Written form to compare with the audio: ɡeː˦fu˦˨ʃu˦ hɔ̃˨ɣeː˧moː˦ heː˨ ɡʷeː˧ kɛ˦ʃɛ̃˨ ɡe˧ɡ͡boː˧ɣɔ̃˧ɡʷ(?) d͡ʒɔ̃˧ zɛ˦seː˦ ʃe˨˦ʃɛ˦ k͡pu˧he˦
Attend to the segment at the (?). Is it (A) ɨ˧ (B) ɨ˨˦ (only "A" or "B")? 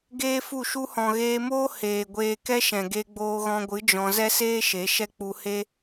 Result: B